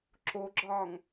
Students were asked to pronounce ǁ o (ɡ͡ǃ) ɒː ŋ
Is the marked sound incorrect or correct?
incorrect